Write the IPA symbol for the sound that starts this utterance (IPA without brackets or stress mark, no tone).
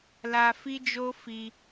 l